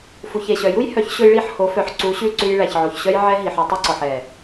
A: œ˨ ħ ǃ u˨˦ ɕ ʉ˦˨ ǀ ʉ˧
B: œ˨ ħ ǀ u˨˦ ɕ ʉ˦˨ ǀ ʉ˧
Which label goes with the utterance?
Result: B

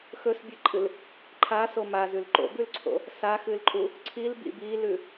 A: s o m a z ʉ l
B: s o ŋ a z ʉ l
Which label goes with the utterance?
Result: A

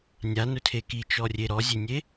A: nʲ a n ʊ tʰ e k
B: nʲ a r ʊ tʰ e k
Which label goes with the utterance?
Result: A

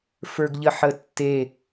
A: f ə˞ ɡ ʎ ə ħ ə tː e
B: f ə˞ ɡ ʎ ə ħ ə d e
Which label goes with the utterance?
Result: A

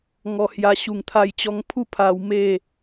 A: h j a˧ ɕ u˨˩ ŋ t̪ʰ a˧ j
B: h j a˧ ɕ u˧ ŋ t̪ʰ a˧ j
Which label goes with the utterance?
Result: A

